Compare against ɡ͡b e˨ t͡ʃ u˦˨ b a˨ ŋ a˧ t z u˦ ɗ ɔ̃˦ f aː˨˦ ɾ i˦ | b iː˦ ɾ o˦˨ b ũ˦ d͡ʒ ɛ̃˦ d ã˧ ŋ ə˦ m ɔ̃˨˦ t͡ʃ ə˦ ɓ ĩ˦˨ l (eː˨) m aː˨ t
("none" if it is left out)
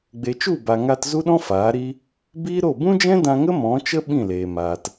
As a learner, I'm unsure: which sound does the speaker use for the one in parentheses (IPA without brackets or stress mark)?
eː˨